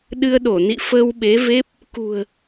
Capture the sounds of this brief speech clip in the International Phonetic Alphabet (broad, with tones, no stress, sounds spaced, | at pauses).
ɗ ɨ˧ ə̯ ɗ o˧˩ n ḭ˧˨ f əː˧ w ɓ e˨˦ v e˦˥ p̚ | k ṳ˨˩ ə̯